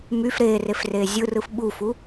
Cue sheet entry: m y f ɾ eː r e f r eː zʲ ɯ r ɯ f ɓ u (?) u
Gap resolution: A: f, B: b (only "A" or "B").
A